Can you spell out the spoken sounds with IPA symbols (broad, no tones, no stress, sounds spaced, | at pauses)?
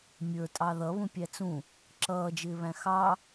mʲ ə˞ tʼ ɑ ð ʌ β ũ pʲ æ t͡s ũ | ǁ ʌː d͡ʒ ɪː β æ̃ x ɑ